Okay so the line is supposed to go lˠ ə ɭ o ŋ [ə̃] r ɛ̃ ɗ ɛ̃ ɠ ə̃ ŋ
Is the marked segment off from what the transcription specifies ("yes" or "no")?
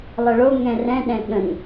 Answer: yes